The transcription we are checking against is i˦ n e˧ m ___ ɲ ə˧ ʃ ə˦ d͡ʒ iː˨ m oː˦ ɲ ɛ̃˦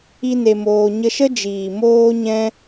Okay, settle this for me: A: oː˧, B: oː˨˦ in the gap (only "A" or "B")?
A